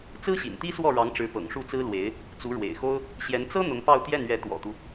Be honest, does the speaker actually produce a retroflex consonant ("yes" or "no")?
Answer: yes